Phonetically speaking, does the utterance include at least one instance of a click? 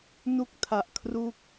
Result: no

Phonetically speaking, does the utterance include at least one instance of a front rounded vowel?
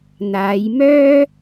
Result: yes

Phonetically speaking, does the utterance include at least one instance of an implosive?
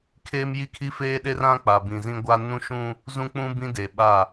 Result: yes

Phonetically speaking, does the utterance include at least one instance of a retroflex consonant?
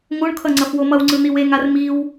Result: yes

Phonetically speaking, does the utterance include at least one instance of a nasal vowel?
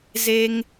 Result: no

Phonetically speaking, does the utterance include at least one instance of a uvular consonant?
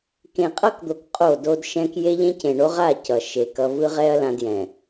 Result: yes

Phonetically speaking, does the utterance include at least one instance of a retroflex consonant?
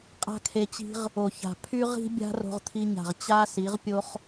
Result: no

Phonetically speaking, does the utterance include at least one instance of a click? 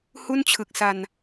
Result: no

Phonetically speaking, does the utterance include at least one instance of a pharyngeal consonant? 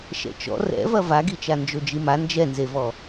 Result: no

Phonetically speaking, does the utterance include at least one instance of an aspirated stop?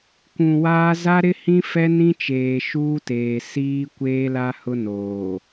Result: no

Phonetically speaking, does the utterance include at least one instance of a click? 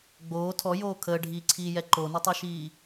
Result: yes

